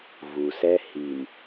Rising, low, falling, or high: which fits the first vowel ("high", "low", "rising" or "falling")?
low